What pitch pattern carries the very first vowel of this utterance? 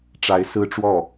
rising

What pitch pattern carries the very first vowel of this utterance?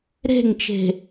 falling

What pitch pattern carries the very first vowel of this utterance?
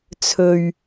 low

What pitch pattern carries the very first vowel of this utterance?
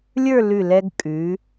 falling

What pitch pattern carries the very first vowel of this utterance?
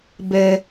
low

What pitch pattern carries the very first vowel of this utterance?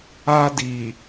high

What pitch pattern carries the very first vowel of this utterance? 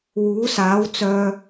rising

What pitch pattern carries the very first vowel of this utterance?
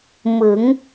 rising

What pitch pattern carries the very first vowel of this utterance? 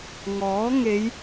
rising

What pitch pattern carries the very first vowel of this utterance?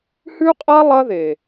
high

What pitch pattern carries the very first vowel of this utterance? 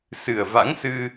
low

